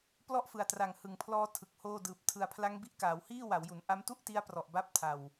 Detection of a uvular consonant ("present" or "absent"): absent